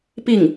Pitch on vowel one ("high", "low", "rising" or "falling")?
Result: falling